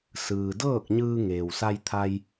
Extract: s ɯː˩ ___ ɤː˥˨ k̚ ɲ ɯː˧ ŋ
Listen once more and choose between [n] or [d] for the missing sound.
d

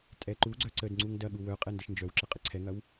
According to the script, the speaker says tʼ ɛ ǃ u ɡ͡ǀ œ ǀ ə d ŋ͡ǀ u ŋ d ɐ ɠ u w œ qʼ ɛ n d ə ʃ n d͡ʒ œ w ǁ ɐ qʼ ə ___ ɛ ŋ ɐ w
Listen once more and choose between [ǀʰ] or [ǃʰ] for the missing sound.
ǀʰ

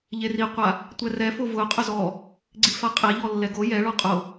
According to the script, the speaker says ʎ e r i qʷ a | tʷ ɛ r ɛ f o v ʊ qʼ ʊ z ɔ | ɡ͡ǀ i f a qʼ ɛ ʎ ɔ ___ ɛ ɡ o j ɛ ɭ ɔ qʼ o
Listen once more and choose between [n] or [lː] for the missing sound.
lː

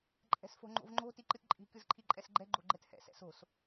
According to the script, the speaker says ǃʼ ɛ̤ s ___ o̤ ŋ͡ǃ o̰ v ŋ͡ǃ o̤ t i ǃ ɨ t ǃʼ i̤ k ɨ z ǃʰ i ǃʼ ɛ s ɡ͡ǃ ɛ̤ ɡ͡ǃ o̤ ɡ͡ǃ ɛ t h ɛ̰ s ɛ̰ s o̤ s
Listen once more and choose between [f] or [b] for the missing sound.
f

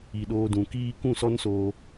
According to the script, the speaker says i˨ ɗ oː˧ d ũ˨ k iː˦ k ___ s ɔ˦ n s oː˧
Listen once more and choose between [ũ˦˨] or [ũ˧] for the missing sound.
ũ˦˨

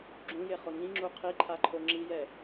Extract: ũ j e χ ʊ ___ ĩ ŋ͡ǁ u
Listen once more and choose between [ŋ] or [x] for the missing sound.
ŋ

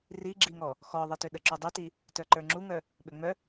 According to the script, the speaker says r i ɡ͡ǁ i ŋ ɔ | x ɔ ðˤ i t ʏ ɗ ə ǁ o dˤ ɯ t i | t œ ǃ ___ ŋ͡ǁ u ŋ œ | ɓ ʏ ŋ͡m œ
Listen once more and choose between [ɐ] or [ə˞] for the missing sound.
ə˞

